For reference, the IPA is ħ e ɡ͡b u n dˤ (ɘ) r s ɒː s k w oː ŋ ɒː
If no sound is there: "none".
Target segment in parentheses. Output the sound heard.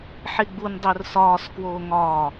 ø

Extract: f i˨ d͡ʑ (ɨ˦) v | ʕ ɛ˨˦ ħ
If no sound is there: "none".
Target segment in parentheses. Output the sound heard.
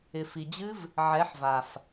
ɨ˦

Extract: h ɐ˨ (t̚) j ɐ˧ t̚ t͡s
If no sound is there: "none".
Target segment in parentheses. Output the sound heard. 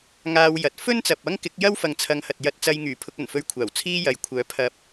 t̚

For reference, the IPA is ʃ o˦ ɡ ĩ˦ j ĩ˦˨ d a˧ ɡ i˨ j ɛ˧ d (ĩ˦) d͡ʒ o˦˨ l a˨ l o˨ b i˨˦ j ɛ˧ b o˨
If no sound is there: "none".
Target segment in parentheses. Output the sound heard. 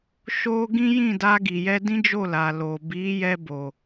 ĩ˦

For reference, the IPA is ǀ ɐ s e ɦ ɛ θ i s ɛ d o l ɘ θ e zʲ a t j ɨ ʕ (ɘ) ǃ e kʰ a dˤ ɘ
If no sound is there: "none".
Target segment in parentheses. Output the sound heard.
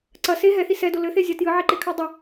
e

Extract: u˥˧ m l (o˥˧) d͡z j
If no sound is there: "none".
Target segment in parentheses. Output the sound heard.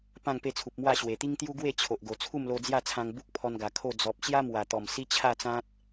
o˧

